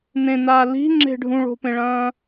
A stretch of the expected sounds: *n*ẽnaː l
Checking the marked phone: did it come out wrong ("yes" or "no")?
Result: no